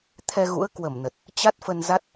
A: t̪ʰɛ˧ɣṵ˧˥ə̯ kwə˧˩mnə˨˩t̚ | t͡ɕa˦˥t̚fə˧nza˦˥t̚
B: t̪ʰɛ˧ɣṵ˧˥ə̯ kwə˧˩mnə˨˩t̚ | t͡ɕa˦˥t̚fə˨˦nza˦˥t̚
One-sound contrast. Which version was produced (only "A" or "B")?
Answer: A